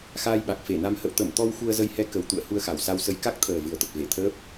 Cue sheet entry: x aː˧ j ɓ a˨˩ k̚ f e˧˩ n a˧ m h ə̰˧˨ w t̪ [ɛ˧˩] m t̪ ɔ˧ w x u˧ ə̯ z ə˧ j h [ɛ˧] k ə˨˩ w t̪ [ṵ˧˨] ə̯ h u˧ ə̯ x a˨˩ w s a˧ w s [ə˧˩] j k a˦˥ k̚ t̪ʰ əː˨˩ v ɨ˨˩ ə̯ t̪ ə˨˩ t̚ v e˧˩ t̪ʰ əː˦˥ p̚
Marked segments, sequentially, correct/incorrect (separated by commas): incorrect, correct, correct, incorrect